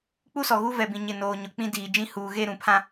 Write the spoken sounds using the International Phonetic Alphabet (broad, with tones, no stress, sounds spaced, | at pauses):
k͡p u˦ s ɔ˨ ɣ u˦ v ɛ˨ b ĩ˨ ɲ ɪ˦˨ n oː˨ ɲ ʊ˨ k͡p ĩ˦ d iː˨ d͡ʒ ĩ˦ h uː˨ ɣ e˦˨ ɾ ũ˨ pʰ ã˦